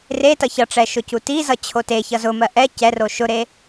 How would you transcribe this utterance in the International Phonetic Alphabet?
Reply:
retʌ çʌʈ͡ʂɛ ʃʊcutizʌ t͡ɕʰoteçʌ zʊmɜ ʔɛ cɛro ʃʊɾe

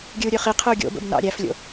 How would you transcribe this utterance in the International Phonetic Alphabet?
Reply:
ɡʲɯu̯ɾʲøχi qʰɯu̯ɡʲo̰bo̰b nɑ̰ɾʲæflʲo̰

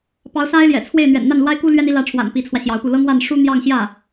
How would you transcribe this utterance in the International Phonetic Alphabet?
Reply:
pɑ˧˥ʊ̯sa˥ɪ̯ljɛ̰˨˩t͡sʰwe˥˩ɪ̯ n̪ɥɛ̰˨˩nn̪a˥˩nlwa˥ɪ̯ku˥ lɥɛ˥ni˧˥lä˧˥ʈ͡ʂʰwa̰˨˩n pi˧˥t͡sʰwä˧ɕjɑ˧˥ʊ̯pu˥˩ lɤ˥ŋwa˥˩n ʂu˥n̪jɑ˥˧ŋɕjä˥˩

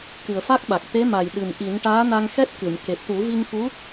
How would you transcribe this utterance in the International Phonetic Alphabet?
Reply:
kɨ˨˩ə̯fa˦˥k̚ɓa˨˩k̚ t̪e˧˥ma˨˩j ɗɨ˨˩mʔi˨˩˦n ʈaː˧˥na˧ŋxɛ˦˥t̚kɨ˨˩˨m ke˨˩p̚t̪u˨˩˦vi˧ŋfu˧˥

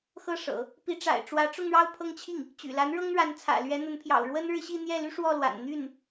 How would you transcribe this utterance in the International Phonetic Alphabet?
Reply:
xɤ˥˩ʂɤ̰˨˩˦ | pi˧˥ʈ͡ʂa̰˨˩ɪ̯ʈ͡ʂwä˧˥ ʈ͡ʂʊ˥˧ŋɻɑ˥˧ʊ̯pʰɤ˥˧ŋt͡ɕʰi˥˩ŋ | t͡ɕy̰˨˩la˧˥n ɻɤ˥ŋɻa˧˥nt͡sʰä̰˨˩ lɥɛ˧˥n̪ə˧˥npʰjɑ̰˨˩ʊ̯ ɻwə˥nɻɻ̩˥˧ ɕi˥˧n̪jɛ˥˩ly˥ ʂwɔ˥˩lwa̰˨˩n n̪y˥˩n

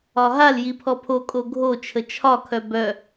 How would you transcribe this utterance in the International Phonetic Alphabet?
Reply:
ɒɦal jipʰɔpʰo kʼoɡʱot͡ʃʰə t͡ʃʰɒkʰœ bœ

